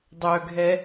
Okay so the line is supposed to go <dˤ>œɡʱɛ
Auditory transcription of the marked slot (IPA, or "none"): dˤ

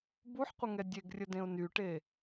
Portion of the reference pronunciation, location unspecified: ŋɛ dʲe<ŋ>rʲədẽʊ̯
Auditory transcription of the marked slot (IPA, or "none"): ɡ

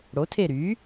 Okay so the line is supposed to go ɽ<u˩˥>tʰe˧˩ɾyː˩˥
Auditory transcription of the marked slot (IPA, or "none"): o˩˥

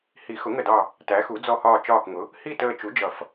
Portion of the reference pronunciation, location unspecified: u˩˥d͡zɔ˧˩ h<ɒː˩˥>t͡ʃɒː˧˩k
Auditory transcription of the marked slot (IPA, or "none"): ɒː˧˩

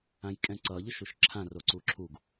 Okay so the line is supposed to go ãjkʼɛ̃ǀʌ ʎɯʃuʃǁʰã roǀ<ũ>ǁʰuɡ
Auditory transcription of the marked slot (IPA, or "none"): u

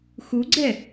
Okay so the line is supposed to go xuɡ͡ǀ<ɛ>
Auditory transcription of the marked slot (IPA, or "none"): ɛ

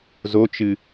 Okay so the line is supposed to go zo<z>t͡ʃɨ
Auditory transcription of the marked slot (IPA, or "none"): none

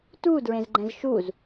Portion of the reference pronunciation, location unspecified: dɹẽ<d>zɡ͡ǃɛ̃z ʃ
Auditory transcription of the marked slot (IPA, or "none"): none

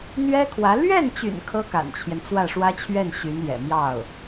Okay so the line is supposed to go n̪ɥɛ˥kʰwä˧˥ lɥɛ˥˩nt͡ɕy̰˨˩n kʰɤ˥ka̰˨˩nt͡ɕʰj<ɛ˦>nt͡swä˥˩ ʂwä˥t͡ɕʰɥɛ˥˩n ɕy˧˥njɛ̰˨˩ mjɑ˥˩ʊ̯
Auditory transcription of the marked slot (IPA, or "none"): ɛ˦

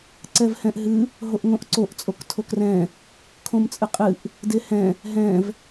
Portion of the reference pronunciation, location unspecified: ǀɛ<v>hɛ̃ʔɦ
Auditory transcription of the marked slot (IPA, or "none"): v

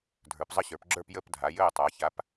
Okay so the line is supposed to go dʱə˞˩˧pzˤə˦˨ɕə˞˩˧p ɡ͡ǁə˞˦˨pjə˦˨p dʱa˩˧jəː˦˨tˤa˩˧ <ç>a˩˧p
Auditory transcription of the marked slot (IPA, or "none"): ç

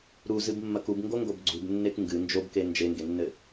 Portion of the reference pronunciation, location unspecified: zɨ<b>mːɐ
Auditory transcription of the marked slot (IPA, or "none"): b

